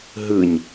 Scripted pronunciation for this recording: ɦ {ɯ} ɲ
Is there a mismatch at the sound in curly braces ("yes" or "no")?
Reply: no